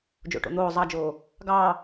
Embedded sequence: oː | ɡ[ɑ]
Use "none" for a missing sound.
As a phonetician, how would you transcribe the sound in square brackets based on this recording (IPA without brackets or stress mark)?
ɑː